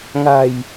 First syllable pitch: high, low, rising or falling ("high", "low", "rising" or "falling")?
low